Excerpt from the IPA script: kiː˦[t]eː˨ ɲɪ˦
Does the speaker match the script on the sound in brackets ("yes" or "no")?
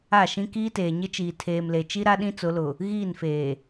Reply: yes